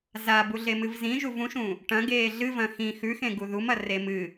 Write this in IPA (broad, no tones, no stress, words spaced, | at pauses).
zabuɮemɨv zĩʒuv ũʃũ | ʈɐ̃ɡeː ɮɨvɐ̃ xĩ xʉxẽɡu ðumɐre mɨ